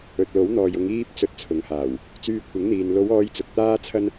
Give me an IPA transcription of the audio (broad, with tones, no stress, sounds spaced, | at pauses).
ɵ˨ t̚ l o˨˥ w n̪ ɔː˨ j ʊ˨˧ ŋ iː˧ p̚ t͡s ɵ˧ t̚ t͡sʰ ʊ˨˧ ŋ h aː˨˩ w | t͡s yː˧ kʷʰ ɪ˨˥ ŋ n̪ iː˨ n l o˨˧ w ɔː˨˧ j t͡s ʊ˨ k̚ t̪ aː˥ t͡sʰ ɐ˥ n